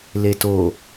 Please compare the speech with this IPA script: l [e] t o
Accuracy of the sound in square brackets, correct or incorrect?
correct